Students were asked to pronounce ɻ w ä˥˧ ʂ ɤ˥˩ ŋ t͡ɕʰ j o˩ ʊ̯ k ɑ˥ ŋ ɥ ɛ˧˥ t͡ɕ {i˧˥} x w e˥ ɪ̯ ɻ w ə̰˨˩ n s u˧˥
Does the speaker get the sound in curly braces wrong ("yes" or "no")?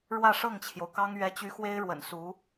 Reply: yes